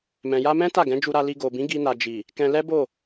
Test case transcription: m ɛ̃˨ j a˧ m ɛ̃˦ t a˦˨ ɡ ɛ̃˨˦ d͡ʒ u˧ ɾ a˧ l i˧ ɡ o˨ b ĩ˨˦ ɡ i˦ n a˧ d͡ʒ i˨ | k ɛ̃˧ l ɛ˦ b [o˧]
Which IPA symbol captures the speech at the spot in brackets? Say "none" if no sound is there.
o˦˨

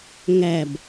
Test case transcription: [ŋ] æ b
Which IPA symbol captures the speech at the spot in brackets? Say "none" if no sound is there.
ŋ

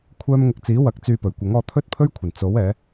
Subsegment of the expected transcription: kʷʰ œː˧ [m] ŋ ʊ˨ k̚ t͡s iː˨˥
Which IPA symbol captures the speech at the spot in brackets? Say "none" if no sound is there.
m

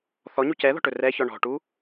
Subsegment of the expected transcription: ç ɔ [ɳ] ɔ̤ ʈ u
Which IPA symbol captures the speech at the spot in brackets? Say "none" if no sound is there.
ɳ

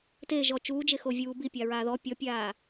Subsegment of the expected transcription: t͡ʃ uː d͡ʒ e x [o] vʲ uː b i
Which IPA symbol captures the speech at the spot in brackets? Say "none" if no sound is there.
o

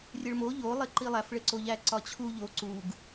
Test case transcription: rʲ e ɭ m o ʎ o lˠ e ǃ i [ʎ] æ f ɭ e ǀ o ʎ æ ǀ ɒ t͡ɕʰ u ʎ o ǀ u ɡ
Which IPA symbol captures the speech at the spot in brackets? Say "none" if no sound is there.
lˠ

